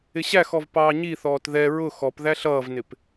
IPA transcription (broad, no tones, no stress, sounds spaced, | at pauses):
ɪ ɕ æ x ɔ v p ɑː ɲ i θ ɔː t ð ɛ ɹ ʊ x ɔ p ð æ ɬ ʌː v n ɪ p